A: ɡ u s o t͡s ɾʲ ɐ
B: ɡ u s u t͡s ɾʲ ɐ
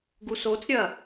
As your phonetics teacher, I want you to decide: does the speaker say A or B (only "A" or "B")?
A